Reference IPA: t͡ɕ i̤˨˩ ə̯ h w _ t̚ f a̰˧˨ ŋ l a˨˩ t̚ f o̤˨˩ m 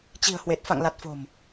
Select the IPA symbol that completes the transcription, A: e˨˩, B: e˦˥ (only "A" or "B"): A